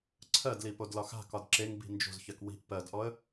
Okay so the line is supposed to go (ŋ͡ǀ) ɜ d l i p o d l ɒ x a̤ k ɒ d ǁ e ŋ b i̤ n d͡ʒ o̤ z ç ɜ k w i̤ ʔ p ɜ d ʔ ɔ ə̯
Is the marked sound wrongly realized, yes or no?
yes